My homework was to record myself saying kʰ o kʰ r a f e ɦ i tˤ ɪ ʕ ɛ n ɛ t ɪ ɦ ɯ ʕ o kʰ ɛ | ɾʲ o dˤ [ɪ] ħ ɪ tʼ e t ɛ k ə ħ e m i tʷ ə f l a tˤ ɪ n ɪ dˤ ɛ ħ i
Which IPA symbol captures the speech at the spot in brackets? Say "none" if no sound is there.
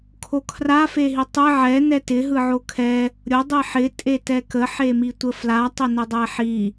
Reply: i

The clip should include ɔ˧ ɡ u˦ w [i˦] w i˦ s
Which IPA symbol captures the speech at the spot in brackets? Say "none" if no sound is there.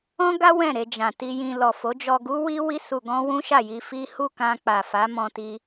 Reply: i˦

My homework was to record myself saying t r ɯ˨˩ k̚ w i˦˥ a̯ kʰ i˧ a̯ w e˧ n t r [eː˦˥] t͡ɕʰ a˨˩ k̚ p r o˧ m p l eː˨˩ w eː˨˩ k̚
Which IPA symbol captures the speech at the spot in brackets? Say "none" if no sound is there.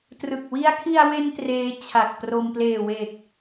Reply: eː˦˥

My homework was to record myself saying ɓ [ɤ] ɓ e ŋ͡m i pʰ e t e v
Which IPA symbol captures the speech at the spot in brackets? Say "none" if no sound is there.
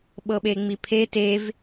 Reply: ɤ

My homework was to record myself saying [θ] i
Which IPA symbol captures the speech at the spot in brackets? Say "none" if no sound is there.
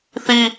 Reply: θ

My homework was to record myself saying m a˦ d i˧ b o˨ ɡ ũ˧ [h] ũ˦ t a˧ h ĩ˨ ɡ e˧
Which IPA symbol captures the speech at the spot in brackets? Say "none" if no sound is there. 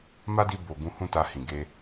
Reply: h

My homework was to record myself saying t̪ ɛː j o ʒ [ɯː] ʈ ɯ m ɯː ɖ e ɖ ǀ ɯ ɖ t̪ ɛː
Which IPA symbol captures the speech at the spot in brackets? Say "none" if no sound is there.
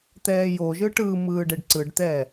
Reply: ɯ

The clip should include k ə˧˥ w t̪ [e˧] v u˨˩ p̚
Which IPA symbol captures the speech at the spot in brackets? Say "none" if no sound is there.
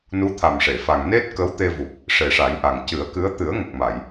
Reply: e˧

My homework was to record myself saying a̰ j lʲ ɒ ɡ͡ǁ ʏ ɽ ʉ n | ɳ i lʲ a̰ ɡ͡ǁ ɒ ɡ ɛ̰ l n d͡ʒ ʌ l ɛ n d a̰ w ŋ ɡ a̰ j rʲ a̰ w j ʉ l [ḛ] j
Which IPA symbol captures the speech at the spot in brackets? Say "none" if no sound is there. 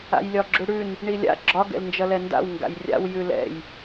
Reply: ɛ̰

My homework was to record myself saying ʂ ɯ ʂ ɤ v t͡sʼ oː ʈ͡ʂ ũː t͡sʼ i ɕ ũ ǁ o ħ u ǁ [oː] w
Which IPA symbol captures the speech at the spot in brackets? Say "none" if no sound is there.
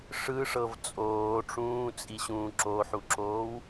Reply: oː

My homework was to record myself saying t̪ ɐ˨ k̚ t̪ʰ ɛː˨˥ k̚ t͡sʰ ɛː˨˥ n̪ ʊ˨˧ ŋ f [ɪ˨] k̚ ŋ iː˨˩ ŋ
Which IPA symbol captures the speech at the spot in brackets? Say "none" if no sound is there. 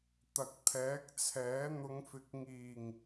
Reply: ɪ˨˥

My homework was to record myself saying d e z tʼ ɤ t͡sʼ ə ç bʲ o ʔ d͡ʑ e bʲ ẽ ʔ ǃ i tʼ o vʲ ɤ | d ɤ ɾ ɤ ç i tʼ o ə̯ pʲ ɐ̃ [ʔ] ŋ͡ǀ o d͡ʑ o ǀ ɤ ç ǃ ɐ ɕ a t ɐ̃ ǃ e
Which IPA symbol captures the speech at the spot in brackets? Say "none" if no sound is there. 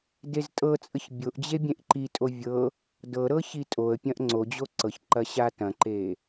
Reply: ʔ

